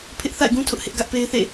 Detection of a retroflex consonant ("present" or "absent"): absent